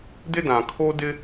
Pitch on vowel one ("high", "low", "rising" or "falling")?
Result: high